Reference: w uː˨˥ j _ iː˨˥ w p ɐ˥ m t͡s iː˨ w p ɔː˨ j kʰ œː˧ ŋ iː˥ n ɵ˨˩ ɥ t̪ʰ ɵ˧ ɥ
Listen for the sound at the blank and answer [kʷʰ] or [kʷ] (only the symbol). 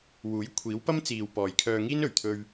kʷʰ